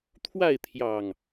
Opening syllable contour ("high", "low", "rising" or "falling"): falling